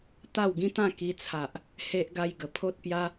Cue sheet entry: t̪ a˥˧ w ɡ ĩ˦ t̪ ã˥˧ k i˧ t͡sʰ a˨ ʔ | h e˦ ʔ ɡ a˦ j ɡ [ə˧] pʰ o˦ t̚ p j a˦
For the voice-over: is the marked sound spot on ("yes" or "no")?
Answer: no